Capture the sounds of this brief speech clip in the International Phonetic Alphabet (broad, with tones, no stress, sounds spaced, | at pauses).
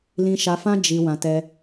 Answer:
l ĩ˧ ʃ a˧ f ã˦ d͡ʒ i˧ w ã˧ t ɛ˧